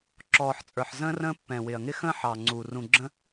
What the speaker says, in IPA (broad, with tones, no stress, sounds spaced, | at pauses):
ǁ ɔː˨ ħ t͡sʼ ə˞˨ ħ z ə̃ː˦ r ə̃ː˦ pː ɛ̃˨ w ɪ˨ ɐ̯ ŋ ɪ˦ x ə̃ː˦ ħ ɑ˨ ŋ͡ǀ u˨ r ũ˨ ɡ͡ǁ ə̃˦